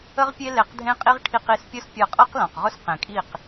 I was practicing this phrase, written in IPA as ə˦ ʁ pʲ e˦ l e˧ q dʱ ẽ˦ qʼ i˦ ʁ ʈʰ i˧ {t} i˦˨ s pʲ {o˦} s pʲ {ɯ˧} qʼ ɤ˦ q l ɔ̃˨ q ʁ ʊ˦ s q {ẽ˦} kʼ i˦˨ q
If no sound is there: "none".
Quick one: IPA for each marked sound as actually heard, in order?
q, ɤ˦, ɤ˧, ẽ˨

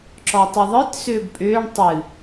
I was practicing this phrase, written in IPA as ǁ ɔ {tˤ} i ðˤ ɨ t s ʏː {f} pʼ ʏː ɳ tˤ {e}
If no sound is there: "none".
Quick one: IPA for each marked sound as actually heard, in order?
tˤ, b, ɨ

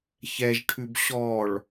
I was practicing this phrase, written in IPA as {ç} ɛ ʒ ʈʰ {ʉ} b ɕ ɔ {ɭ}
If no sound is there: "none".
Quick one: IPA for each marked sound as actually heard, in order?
ç, ʉ, ɭ

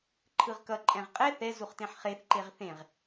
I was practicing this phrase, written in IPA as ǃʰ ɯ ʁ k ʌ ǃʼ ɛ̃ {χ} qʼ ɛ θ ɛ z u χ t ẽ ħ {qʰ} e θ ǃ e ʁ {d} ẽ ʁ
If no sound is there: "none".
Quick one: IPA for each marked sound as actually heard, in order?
ʁ, χ, θ

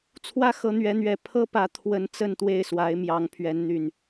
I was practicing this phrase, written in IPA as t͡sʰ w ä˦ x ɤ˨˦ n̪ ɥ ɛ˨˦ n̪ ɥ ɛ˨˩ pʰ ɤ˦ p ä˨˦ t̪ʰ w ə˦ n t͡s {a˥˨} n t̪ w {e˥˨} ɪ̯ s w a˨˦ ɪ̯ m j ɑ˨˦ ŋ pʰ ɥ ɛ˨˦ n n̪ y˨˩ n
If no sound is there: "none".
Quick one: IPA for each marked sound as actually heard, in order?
ə˥˨, e˥˨

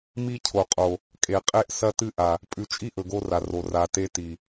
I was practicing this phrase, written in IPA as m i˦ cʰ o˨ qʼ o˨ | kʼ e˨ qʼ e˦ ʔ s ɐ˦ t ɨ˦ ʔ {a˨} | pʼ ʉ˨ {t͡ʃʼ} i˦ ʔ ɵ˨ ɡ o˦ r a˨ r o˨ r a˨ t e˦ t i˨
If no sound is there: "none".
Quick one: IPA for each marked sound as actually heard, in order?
a˨, t͡ʃʼ

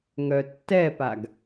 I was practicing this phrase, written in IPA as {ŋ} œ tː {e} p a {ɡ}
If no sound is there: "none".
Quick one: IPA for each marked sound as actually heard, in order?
ŋ, ɛ, ɡ

